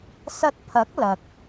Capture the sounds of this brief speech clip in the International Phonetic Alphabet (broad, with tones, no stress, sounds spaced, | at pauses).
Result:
s ɐ˧ t̚ pʰ ɐ˨˥ k̚ l ɐ˨ k̚